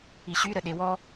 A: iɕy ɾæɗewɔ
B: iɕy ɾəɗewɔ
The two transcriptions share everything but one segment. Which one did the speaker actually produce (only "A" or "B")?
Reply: B